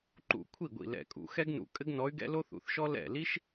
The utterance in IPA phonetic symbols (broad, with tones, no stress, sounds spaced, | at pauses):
ǃ ṵ˧˩ kʷʰ i˥˩ ɡʷ ḭ˧˩ l ɛ̰˧˩ kʼ ṵ˩˧ x ɛ˥ ɡ n ṵ˧˩ kʼ ɘ˥ ɡ n ɔ˧˥ y̯ ɡ ɛ̰˥ l o˥ θ ṵ˩˥ θ ʃ ɔ˥ l ɛ̰˥˩ l i˥ ʃ